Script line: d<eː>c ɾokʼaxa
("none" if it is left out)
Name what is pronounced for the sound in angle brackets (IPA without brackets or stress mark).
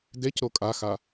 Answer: e